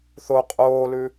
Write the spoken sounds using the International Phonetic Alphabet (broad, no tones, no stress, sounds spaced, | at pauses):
θ o qʼ oː l ʉ